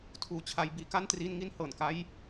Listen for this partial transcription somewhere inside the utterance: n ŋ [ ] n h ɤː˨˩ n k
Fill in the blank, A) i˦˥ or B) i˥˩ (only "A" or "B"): A